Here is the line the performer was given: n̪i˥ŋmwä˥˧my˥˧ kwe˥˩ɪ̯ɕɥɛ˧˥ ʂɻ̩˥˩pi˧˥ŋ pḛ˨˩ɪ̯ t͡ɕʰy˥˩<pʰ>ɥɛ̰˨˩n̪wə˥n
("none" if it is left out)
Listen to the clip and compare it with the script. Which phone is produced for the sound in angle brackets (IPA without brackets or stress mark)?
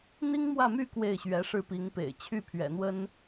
pʰ